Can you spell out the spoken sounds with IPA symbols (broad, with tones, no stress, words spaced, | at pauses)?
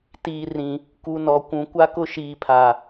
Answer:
tiː˨rĩ˨ | ku˨ nɔ˨kʷũ˨ kʷa˦kʊ˦ ʃiː˨pʰa˨